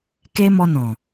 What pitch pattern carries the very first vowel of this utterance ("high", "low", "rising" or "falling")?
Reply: high